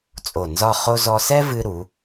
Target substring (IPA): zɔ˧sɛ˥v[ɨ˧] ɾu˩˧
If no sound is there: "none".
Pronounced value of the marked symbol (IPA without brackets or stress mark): ɨ˧